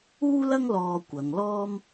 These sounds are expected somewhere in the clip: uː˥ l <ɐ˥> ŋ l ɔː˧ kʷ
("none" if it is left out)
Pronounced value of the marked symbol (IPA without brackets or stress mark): ɐ˥